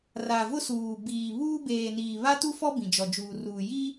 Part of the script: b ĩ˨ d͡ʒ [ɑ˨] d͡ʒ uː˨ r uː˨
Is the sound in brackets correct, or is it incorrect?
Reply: incorrect: ɔ˨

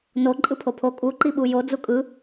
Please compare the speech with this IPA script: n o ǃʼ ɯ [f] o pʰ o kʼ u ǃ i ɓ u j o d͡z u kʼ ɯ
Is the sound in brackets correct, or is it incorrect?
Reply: incorrect: pʰ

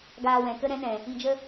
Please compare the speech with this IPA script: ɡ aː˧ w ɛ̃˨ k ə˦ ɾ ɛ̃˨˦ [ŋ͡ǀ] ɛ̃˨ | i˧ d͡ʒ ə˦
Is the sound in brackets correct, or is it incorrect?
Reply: incorrect: n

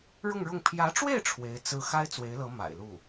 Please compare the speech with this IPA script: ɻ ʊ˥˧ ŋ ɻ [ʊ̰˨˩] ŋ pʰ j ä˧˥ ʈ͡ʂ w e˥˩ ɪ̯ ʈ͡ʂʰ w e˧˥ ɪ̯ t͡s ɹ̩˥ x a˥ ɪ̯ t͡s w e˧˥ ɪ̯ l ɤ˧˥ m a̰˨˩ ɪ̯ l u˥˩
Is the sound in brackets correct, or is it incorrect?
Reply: incorrect: ʊ˥˩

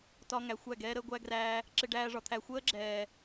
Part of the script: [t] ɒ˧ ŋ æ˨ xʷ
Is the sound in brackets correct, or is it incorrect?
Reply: correct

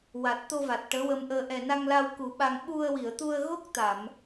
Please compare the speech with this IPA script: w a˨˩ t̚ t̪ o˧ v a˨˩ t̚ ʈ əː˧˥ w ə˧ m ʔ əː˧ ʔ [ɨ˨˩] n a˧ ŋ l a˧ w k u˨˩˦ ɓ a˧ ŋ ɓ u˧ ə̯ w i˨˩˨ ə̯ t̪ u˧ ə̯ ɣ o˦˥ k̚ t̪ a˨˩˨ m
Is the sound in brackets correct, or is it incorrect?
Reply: incorrect: ɛ˨˩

